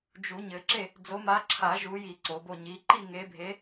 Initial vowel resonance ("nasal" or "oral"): oral